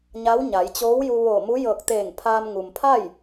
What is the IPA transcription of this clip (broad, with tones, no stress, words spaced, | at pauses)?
ɲa˧˥wɲa˩˧j t͡ɕoː˧˥wju˧ ʋoː˧˩mu˧˥jɤː˧˩k̚ t̪eː˧˩ŋpʰaː˧mŋu˩mpʰa˥˨j